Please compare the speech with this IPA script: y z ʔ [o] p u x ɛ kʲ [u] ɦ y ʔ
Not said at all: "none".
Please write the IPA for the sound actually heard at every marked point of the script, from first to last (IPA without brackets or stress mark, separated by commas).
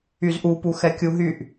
u, u